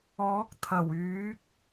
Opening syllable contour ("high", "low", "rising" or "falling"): rising